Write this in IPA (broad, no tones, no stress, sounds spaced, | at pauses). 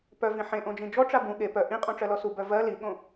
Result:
p œ v ĩ ħ ẽ ʔ õ d͡ʒ ĩ d͡ʒ ɔ ʈ͡ʂ a b ũ ɠ e p œ ʔ ĩ qʼ õ ʈ͡ʂ ɜ l ɔ s u b œ v ɜ l i ɠ õ